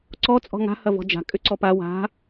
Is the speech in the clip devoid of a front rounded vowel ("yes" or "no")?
no